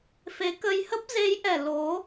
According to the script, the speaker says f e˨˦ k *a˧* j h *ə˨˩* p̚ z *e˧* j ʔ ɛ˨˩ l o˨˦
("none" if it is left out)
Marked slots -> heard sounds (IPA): ə˧, ə˦˥, e˨˦

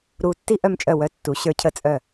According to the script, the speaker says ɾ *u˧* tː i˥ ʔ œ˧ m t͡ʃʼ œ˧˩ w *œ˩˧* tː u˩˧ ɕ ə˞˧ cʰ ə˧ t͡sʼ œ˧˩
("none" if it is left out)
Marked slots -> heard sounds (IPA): u˧, œ˧

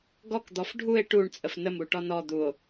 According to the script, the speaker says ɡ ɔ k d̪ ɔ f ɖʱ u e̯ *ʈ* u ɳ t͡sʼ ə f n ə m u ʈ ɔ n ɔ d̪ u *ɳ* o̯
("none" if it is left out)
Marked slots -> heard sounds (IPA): ʈ, none

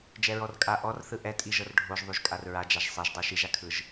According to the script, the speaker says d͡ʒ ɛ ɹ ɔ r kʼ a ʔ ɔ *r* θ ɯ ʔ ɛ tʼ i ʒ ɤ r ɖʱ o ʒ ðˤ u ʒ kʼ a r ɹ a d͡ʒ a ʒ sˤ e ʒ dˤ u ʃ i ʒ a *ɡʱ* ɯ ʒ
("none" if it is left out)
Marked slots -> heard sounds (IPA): r, kʰ

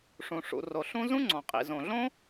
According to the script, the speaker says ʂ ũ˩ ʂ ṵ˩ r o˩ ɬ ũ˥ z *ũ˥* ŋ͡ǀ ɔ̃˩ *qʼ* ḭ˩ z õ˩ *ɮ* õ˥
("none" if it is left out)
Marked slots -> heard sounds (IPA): ũ˥, qʼ, ɮ

